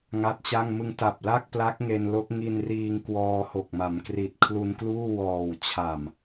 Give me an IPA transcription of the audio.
ŋa˦˥t̚t͡ɕa˥˩ŋ mɯ˧ŋta˨˩p̚ la˥˩k̚pla˦˥k̚ŋe˧n lo˦˥k̚ ŋi˧nriː˧ŋ kwɔː˧ho˨˩k̚ma˩˦mkri˨˩t̚ kʰlu˧nkluː˥˩wɔː˨˩w t͡ɕʰa˨˩m

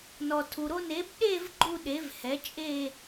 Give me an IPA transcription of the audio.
nɔ˨tʰu˨ɾo˥˧n e˩˥bɗe˥˧v ɡ͡ǃu˥˧ɗe˩˥vhɛ˩˥ t͡ʃʼe˥˧

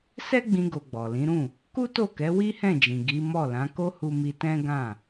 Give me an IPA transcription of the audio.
sɛ˦ɡ͡bĩ˧ɡo˨ ɡ͡bɔ˨lĩ˨˦ɾũ˦˨ | ku˦to˦˨kɛ˨˦ wi˦hɛ̃˦˨d͡ʒĩ˨ ɡi˨˦ mɔ˦˨ lã˨˦ko˦ hu˦mi˦ tɛ̃˦ɡã˦˨

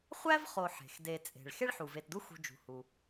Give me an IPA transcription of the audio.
χʷæ˥vχo˨ ħe̤˩x de˨ t͡sʼe̤˩ɭ xe˥ɭħu˩ve˨tdu˦ xṳ˨d͡ʒṳ˩ hu˩

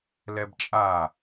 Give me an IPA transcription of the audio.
lɛbt͡ʃʼa

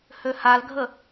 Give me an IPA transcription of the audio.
høhalɡʱə

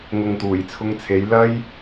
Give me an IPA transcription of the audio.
ŋʊ˨ŋt̪uː˨˩jt͡sʰʊ˧ŋt͡sʰe˨˧j lɐ˥j

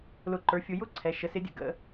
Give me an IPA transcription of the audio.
lʊ˧˩ǃə˞˨˦fʲʊ˨˦ jʊ˥ǀʰɛ˩˧˩ʃə˨˦sɪ˨˦ dʲə̰˧˩ɡə̰˩˧˩

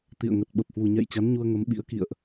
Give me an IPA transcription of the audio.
t̪ḭ˧˨ə̯ŋə˨˩t̚ ɓə˨˩p̚hwu˨˩ɲɛ̰˧˨jt͡ɕa˨˦n ɲu˧ə̯ŋə˨˦mɓḭ˧˥ə̯ kḭ˧˨ə̯ʔ

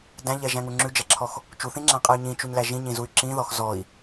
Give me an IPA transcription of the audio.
dæ̃ʎɛʒæ̃ŋu ŋ͡ǁʉd͡ʒɛǁʰɔx | t͡ʃuθĩŋ͡ǁæ̃qʼɛy̯ ɲĩt͡ʃuɲlæ ʒĩɲĩzuy̯ ǁĩðɔx zɔi̯

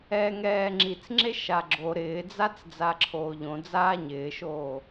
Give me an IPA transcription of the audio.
ɛːŋɛːŋ͡ǁit͡sŋ͡ǁe ʃaɡ͡ǁo ɾɪːd͡zat͡s d͡zaǁʰoːʎõ d͡zaːɲɪːʃoː

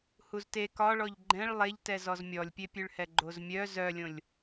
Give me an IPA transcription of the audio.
huzte kɒɭɔʎ ɡ͡ǃɛ̃ɭ lˠeʎtɛzɔz mʲɔlʲpʲepʲʉɭhɛ ɡ͡ǃozmʲœ zœlʲõlʲ

